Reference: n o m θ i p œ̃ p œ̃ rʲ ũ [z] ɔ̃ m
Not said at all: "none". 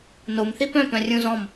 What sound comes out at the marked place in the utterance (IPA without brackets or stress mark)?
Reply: z